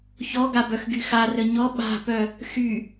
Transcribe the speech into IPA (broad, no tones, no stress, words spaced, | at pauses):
çɔɡa bœxɡyxa rəɲɔ ɓa̤pœ | xy